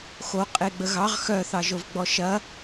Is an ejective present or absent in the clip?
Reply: present